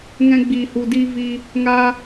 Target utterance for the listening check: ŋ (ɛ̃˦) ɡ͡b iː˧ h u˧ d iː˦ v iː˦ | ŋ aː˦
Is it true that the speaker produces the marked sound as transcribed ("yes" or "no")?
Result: yes